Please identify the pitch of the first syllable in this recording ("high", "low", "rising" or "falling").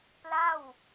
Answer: falling